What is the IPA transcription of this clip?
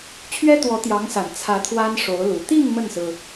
t͡ɕʰ ɥ ɛ˥ t̪ w ɔ˧˥ t̪ j ɑ˧˥ ŋ s a˨˩ n t͡sʰ ä˧˥ t̪ʰ w a˥ n ʂ o˧˥ ʊ̯ l u˨˩ t̪ i˥˧ ŋ m ə˥˩ n s ɹ̩˩

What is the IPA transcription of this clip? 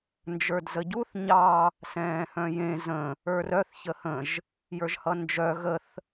n d͡ʒ ə˞ d z ə ɟ u θ ɲ ɑ | s ɛ̃ː h œ̃ j ẽ z ə̃ | ə˞ r œ θ ç ə h ə̃ ʒ | j ə˞ ʒ h ʌ n d͡ʒ œ ɣ ə θ

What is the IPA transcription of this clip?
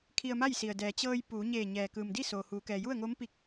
kʰ i˧ ə̯ m a˥˨ j s i˩ ə̯ d ɛː˩ t͡ɕ ɤː˧ j p uː˩˧ ɲ eː˧˩ ɲ ɛː˩ k ɯː˩ m d i˥˨ s oː˩ h uː˩˧ k ɛː˩ j u˥˨ ə̯ ŋ oː˧˥ m p i˧ k̚

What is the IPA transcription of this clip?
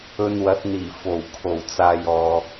ɵ˧ n w ɐ˨˥ t̚ n̪ iː˨˩ f o˨˩ w kʰ o˨˩ w t͡s aː˨ j ɔː˨

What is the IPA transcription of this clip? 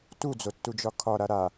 t u d͡z o tː u d͡ʒ ɒ kʰ ɒ ɾ a ɾ a

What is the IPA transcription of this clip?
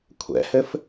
kʷʰ ɛ̰ h ɘ f

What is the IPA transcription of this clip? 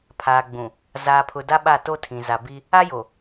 pʰ aː˨ ɡ͡b ũ˨ | z aː˨ pʰ ʊ˨ d a˦ ɓ a˦˨ t o˦ tʰ ĩ˨ z a˨ b i˦ | a˦ j o˨

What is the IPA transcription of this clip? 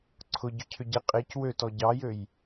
ǀʰ ʊ ɟ ʏ cʰ ʏ ɟ e qʼ e c w ø t ɔ ɟ ɑ j ø j

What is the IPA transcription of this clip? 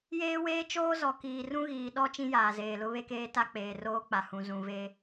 j eː˦ w eː˦ t͡ʃ oː˦ z ɔ˨ k iː˨ r ũ˦ ɣ iː˨ ɗ ɔ˦ t͡ʃ ĩ˦ j aː˨ z eː˨ l ʊ˦ β e˦ k eː˦ t a˦ k͡p eː˨ r oː˦ k͡p a˨ h ũ˨ z ũ˨ v e˦

